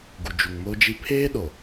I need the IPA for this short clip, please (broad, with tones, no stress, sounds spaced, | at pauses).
ɡ u˨ d͡ʒ u˨ ŋ m o˦ d͡ʒ i˦ pʰ eː˦ ɗ o˨